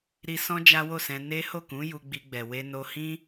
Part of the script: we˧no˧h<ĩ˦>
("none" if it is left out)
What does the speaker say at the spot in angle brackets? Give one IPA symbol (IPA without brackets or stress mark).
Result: ĩ˦